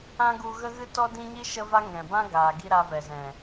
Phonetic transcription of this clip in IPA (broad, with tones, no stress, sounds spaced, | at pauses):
ã˦ ɡ u˧ ɣ ə˦ ɣ ɨ˦ t ɔ˦ d ĩ˦ ɲ i˦ ʃ ə˦ v a˦ ŋ ɛ̃˨ b ã˦ ɡ aː˨ ɡ i˧ ɾ a˧ v ɛ˨ z ɛ̃˨